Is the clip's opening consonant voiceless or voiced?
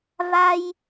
voiced